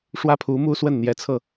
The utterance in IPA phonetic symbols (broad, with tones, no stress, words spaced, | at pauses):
ʂwä˥pʰu˧˥ mu˥swə˥˩nn̪jɛ˧˥t͡sʰɤ˥˩